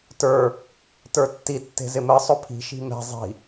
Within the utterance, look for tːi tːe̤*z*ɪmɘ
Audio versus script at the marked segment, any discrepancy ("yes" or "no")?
no